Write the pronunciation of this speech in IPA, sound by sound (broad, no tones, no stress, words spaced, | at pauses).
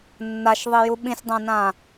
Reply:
nːaʃðˤiju ɓĩsʲdˤãnã